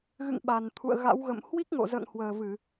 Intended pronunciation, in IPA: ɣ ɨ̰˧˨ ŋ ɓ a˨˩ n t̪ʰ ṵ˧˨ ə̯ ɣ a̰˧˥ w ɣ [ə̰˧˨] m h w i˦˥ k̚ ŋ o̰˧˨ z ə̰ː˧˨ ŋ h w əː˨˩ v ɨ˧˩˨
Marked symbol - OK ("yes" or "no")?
yes